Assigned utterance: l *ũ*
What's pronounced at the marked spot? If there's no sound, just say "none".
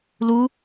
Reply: u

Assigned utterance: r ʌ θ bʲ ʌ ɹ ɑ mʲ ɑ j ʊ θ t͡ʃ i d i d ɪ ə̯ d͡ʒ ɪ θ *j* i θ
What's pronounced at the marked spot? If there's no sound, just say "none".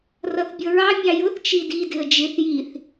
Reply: j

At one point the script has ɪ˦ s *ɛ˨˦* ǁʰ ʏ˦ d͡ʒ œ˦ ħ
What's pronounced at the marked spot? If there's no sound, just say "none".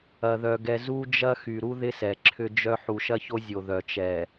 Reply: ɛ˨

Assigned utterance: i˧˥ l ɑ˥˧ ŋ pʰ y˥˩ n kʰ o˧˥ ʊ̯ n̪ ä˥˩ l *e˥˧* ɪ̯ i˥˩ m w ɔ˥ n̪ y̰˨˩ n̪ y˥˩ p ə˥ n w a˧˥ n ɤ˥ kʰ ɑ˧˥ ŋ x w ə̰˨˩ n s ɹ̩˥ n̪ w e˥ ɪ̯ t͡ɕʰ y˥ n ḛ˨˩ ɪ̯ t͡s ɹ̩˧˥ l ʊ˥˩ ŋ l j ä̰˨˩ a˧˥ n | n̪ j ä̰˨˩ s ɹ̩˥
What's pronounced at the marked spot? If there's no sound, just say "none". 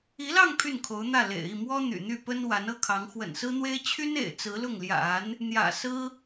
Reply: ḛ˨˩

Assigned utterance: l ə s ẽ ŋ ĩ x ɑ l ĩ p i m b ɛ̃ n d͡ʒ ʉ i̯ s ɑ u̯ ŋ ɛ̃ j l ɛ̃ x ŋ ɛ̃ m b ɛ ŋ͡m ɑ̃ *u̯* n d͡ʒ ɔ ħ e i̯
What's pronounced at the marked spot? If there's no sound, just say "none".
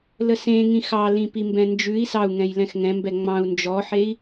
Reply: u̯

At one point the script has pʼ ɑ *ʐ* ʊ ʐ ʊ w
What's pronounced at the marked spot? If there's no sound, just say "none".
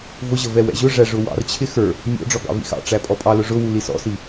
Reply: l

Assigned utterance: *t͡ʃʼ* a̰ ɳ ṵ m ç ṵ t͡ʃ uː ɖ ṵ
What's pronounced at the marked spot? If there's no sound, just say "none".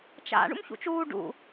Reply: t͡ʃ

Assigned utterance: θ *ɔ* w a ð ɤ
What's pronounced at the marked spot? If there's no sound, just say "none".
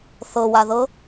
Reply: ɤ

